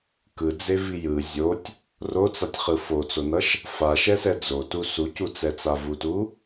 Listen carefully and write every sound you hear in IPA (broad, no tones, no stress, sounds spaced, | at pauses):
k ɯ d͡z e v i j ɯ zʲ o tʲ | r o t͡s a tʲ χ ɯ f o t͡s o n ʌ ʃ | f a ʃ ɛ s ɛ d͡z o t u s u c u t͡s ɛ t͡s a v u t u